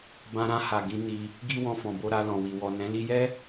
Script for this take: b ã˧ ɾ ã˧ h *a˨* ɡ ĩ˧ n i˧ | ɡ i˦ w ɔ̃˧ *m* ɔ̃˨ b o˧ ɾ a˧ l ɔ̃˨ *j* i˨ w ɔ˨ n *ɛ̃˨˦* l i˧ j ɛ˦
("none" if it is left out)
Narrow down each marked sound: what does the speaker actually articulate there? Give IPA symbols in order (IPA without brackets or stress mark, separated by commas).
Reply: a˨, f, w, ɛ̃˨˦